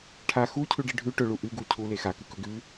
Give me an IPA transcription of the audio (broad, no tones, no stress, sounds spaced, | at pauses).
ʈʰ a x u cʰ ʉ ɖ i ɖʱ ʉ ʈ ɵ ɭ u ʔ ɨ ɡ u cʰ u l e x a k ɨ k ɵ ɡ ʉ